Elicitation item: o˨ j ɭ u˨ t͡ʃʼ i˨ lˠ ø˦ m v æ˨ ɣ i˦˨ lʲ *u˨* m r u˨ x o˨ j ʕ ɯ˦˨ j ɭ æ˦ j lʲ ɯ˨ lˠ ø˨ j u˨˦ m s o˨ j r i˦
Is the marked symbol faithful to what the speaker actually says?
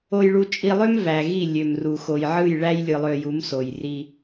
no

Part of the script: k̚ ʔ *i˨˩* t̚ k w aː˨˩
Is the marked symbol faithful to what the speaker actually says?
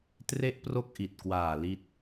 yes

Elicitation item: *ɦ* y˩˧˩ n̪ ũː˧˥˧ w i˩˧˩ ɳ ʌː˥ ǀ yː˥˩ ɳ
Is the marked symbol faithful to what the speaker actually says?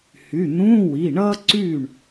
no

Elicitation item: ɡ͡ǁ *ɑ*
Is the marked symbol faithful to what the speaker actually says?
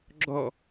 no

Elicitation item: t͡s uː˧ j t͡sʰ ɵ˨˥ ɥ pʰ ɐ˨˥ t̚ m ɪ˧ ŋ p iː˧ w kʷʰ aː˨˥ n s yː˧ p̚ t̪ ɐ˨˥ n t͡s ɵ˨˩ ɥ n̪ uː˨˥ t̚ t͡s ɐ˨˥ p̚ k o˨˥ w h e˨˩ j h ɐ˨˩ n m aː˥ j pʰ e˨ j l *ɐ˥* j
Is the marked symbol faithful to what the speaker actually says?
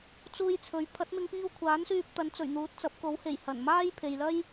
yes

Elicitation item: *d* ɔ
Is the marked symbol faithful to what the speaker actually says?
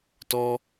no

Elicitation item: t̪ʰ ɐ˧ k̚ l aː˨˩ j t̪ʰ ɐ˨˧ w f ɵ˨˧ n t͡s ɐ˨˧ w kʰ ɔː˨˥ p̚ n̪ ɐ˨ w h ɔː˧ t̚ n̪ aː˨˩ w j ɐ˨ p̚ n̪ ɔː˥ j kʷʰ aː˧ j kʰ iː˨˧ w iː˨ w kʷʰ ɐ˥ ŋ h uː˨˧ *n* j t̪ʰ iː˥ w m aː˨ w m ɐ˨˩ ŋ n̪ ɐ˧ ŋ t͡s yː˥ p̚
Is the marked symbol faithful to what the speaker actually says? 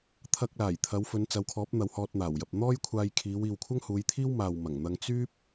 no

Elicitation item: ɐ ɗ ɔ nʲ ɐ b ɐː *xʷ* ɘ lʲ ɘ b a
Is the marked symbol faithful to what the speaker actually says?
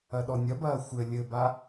yes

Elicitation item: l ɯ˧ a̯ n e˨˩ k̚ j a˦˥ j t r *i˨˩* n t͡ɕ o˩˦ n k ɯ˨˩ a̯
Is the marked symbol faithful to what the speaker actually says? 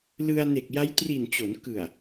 yes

